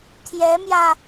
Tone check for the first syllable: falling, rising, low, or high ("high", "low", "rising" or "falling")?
rising